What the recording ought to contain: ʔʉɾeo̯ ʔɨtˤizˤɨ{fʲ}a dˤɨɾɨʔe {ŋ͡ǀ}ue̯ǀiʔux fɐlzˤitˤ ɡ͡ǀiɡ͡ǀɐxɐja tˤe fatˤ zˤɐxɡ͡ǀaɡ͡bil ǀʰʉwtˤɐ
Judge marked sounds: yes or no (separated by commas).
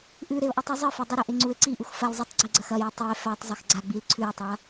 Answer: no, yes